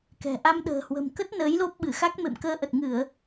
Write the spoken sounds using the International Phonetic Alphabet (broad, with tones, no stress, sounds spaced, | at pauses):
k ɛ̤˨˩ ʔ a˧ m ɗ ə̤ː˨˩ h w ə̤˨˩ m k ə˦˥ t̚ n əː˨˦ j l o˦˥ p̚ ɓ ɨ˧˩ x a˦˥ k̚ m ḛ˧˨ m k əː˧ ʔ ə˨˩ t̚ ŋ ɨ˧˩˨ ə̯